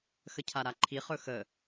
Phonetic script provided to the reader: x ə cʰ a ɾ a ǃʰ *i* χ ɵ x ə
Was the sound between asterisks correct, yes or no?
yes